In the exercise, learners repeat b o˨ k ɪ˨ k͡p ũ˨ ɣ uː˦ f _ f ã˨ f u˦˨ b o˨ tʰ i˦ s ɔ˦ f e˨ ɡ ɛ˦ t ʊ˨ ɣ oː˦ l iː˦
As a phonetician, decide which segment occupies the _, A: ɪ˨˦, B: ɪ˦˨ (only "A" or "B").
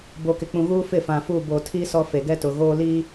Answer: B